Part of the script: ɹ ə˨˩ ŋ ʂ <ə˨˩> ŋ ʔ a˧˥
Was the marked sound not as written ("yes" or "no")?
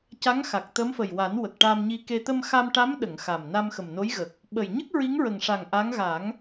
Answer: yes